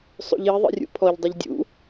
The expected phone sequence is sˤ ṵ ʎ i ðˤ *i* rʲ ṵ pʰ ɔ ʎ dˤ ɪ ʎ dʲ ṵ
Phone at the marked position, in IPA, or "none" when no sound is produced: ḭ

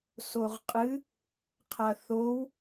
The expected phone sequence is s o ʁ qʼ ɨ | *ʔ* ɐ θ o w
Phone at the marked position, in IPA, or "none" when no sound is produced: qʰ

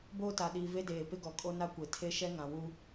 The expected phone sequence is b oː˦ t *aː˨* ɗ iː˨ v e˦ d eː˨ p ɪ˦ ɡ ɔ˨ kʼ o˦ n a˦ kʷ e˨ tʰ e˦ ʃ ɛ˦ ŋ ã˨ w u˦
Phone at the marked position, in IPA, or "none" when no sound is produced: a˨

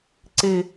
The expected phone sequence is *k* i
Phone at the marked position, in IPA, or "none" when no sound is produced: ǀ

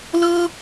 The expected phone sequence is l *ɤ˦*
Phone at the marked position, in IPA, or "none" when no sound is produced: ɤ˦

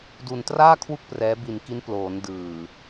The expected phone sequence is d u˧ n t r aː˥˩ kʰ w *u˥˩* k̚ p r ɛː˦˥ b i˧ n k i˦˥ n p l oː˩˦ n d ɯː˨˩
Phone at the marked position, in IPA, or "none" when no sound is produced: u˥˩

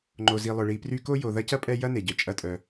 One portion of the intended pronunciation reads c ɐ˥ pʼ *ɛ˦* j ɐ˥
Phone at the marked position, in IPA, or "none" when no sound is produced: ɛ˦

